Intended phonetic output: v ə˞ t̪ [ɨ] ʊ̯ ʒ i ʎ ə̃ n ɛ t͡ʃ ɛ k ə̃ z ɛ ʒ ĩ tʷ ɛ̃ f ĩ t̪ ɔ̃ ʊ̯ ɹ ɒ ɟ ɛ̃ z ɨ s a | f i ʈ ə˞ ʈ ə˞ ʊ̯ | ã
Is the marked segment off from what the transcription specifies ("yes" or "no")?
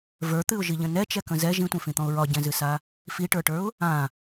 no